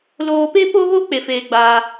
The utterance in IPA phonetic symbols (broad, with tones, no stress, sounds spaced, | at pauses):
l oː˧ p e˦ p o˦ ɣ o˦ k͡p e˧ f eː˧ ɡ͡b aː˧